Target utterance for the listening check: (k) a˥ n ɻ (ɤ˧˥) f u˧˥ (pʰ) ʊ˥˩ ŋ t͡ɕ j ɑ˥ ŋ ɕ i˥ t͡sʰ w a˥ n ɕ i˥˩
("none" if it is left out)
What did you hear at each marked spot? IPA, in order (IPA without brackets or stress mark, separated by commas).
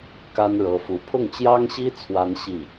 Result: k, ɤ˧˥, pʰ